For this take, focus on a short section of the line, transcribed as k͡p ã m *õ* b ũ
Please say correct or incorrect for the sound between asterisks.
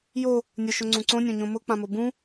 incorrect